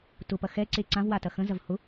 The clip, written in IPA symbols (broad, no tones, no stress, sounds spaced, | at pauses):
t ʊ p ɐ x ɛ ǀ e ǀ ã v w a t ɐ x ə̃ z ɐ v h ʊ